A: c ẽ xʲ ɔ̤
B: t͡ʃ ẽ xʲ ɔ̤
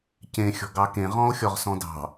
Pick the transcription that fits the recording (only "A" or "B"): A